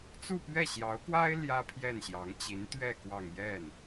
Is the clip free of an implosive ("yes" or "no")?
yes